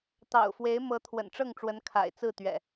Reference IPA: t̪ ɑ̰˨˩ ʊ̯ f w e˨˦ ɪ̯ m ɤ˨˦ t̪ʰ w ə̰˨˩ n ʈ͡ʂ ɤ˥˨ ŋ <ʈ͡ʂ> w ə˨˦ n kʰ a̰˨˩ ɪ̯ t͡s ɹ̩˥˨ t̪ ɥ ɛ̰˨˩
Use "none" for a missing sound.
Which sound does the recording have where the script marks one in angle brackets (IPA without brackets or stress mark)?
ʈ͡ʂ